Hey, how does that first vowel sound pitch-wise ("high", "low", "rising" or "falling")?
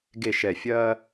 low